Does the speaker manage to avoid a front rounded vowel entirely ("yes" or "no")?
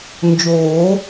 yes